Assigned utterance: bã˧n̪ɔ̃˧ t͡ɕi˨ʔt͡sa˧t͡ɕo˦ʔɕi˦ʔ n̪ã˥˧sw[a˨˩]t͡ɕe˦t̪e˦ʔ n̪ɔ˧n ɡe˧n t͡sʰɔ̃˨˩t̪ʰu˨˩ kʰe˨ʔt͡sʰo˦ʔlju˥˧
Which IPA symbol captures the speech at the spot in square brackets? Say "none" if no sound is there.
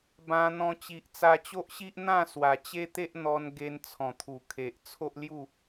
a˨˩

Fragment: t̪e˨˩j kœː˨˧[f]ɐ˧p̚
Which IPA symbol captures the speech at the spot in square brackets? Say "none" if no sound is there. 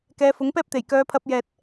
pʰ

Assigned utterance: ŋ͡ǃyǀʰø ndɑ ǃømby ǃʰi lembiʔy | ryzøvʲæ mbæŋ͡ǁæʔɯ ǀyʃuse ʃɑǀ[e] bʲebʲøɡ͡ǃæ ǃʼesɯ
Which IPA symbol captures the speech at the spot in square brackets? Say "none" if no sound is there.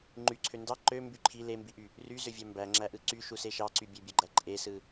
y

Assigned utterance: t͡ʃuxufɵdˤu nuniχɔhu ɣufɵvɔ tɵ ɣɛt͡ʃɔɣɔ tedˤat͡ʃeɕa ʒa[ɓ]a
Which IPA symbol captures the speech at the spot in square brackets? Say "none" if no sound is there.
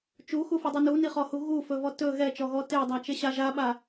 ɓ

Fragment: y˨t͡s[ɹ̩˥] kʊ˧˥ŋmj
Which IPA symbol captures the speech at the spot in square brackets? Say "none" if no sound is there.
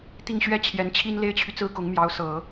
ɹ̩˥˩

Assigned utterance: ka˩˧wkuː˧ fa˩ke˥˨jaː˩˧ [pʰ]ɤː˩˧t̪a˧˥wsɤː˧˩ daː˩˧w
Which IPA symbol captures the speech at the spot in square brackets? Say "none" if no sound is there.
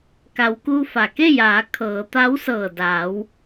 kʰ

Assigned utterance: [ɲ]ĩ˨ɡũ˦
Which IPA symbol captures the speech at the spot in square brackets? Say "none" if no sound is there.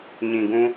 ɲ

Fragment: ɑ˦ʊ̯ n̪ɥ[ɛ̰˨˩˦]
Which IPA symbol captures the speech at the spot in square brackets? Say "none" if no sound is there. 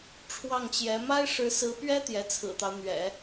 ɛ̰˨˩˦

